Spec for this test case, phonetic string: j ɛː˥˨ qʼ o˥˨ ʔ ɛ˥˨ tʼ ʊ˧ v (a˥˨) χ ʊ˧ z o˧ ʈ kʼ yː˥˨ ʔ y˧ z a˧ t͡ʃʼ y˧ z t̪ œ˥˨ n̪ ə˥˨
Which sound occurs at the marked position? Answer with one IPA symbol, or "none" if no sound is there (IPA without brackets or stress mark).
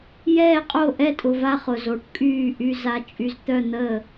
a˥˨